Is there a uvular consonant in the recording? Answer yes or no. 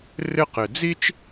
yes